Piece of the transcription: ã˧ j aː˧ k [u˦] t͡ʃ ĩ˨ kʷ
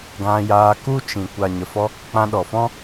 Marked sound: correct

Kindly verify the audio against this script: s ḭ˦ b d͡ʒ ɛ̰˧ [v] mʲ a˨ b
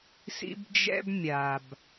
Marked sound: incorrect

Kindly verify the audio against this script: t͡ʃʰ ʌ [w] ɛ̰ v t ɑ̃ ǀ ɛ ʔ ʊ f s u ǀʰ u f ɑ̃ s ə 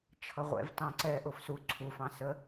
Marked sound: incorrect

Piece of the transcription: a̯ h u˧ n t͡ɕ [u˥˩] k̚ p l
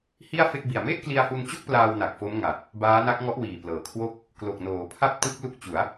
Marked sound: incorrect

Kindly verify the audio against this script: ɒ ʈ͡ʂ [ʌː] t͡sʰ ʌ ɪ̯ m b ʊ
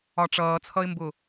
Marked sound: correct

